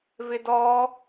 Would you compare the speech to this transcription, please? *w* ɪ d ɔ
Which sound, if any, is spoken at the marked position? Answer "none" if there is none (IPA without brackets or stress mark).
v